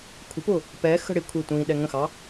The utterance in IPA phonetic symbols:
kʷʰ ə̤ p ʊː | p ɛ x ə̤ ɽ ɪ kʷʰ ɪː tʷ ĩ ɗ ɛ ŋ ə̃ x ɑ

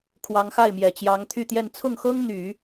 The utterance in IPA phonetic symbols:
kʰ w ɑ˧˥ ŋ x a˥˩ ɪ̯ m j ɛ˨˩ t͡ɕ j ɑ˧˥ ŋ t̪ʰ y˥˧ t̪ j ɛ˥˧ n t͡sʰ ʊ˥˩ ŋ x ɤ˥ ŋ n̪ y˨˩˦

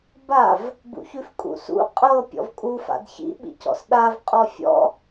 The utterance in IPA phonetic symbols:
b a v | b ṵ ç ʉ f kʼ ṵ s ṵ qʼ ɤ pʲ ɔ̰ v kʼ u f a̰ d ç ḭ ɓ ḭ c ɔ̰ s ɗ a v qʼ ɔ fʲ ɔ̰

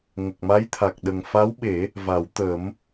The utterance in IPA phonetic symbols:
ŋ ə˨˩ k̚ m a˧˥ j t̪ʰ a˨˩ k̚ ɗ ə˨˩ ŋ f a˧˥ w ɓ e˨˩˦ | v a˨˩˦ w t̪ ə˨˩˦ m

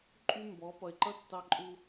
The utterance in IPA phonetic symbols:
ǃʼ y˦ m b ɔ˨˦ p ʌ˨ ɪ̯ ǃ ʌ˦ tː ɑ˦ ǃʼ u˦

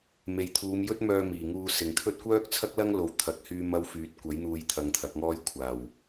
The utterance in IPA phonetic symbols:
m e˨ j t̪ʰ uː˨˧ m j ɵ˥ t̚ m œː˧ m iː˨˩ ŋ uː˧ s ɪ˨˩ ŋ t̪ʰ ɵ˥ t̚ kʷ œː˥ k̚ t͡sʰ ɐ˥ k̚ l ɐ˥ ŋ l o˨˧ w t̪ʰ ɐ˧ k̚ h yː˥ m ɐ˥ w f yː˨˥ t̚ kʷ ɐ˨˥ j n̪ uː˧ j t̪ʰ ɐ˧ ŋ t̪ʰ ɐ˨˥ k̚ ŋ ɔː˥ j kʷʰ aː˨˩ w

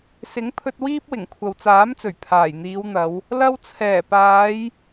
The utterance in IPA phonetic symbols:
s ɪ˨˥ ŋ pʰ ɵ˧ t̚ w iː˥ p̚ w ɪ˨˩ ŋ kʷʰ ɐ˨ w t͡s aː˨˥ m t͡s ɵ˨˩ ɥ pʰ aː˨˩ j n̪ iː˨˧ w n̪ ɐ˨˧ w | l ɐ˧ w t͡sʰ ɛː˨˩ p aː˨˧ j

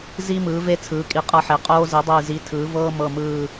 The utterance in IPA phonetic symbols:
z i˧ m ɯː˩˧ v e˧ t͡sʰ ɯː˩˧ kʼ i˨˩ qʼ ɤ˧ ħ e˩˧ qʼ oː˧ z i˩˧ dˤ iː˨˩ z i˩˧ tʰ ɯː˩˧ v ɤː˧ m ɤ˨˩ m ɯː˨˩

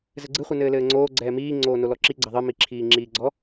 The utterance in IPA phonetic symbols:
z ɘ ɡ͡ǀ ɨ χʷ ɨ n ɘː l ɘː ŋ͡ǀ oː ɡ͡ǀ ɛː m iː ŋ͡ǀ oː n o l ɔ ǁ i ɡ͡ǀ ɐ ðˤ ɨ m i ǁʰ iː ŋ͡ǁ iː ɡ͡ǀ ɔ

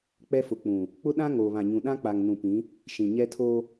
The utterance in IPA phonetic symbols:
k͡p ɛ˦ f ʊ˨ k͡p ũ˨ | k͡p ʊ˦ ɗ ã˦ ŋ oː˨ β ã˨ ɲ ũ˨ ɗ ã˦ k͡p a˨ ŋ n ũ˨ p ĩ˨˦ | ʃ ĩ˨ ɲ ɛ˦ tʰ oː˦

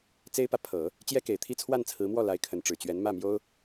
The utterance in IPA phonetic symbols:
t͡s e˥ ɪ̯ p ä˨ pʰ ɤ˨˩˦ | t͡ɕ j ɛ˥ k e˨˩ ɪ̯ t̪ʰ i˥ t͡sʰ w a˥˩ n t͡sʰ ɹ̩˧˥ m w ɔ˥˩ l a˧˥ ɪ̯ kʰ ə˧˥ n ʈ͡ʂ ɻ̩˨˩ t͡ɕ ɥ ɛ˧˥ n m ä˥˩ m j o˥ ʊ̯

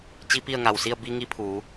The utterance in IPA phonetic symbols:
t͡ɕ i˧˥ p i˥˨ ə̯ ŋ a˧˩ w s i˥˨ ə̯ b i˧ ŋ i˧˥ pʰ uː˩˧

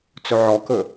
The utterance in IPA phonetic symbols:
t͡s ɵ ʕ ɔ k ɵ

